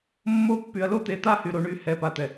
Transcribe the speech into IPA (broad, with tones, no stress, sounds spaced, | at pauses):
mː o˦ pː y˨ ɐ̯ l o˦ t̪ e˨˦ t̪ a˦ h y˨ ɾ o˨ ɳ y˨˦ h ɛ˨ p a˨ t̪ ɛ˨